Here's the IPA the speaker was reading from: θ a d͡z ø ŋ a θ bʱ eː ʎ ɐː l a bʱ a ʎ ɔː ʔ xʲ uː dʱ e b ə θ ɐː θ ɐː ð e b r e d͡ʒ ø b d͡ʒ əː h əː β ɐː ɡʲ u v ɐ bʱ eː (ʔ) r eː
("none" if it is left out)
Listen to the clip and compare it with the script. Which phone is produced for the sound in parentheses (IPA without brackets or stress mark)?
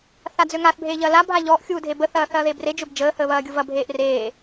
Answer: ʔ